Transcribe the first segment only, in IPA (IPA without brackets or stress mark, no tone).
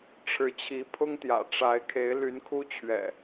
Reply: ʈ͡ʂʰ